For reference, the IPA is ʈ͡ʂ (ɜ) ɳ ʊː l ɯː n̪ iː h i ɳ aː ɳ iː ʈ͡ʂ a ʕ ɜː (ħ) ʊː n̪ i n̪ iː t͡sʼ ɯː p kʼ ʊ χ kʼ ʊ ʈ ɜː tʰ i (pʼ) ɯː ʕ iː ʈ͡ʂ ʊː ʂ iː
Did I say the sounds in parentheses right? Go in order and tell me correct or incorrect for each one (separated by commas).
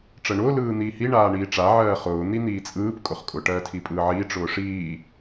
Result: correct, incorrect, correct